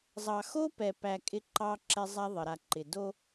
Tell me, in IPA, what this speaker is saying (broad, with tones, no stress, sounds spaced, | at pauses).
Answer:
zˤ ɑ˨ x o˦ p ɛ˨ p æ˨ kʼ ɪ˦ ǃ ɑ˦ ǁ ɛ˦ zˤ a˦ ðˤ ə˨ ɾ a˨ ǃ ɪ˨ d o˦